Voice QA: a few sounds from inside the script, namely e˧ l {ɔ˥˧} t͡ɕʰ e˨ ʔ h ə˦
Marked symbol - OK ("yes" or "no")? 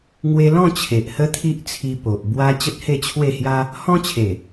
no